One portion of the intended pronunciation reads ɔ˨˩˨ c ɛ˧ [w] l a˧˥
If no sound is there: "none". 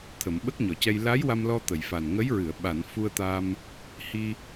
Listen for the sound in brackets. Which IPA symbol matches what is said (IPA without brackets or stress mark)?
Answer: j